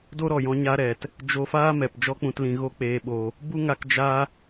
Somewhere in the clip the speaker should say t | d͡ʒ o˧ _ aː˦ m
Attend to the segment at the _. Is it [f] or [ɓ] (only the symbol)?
f